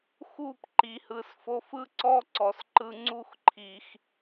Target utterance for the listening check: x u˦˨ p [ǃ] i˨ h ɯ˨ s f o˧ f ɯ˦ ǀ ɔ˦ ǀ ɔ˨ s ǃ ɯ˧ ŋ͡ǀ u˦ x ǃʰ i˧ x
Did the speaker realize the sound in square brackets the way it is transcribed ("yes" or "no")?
yes